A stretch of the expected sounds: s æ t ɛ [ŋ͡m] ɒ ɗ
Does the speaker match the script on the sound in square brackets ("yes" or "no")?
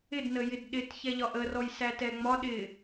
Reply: yes